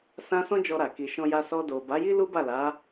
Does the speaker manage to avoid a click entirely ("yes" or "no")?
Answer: yes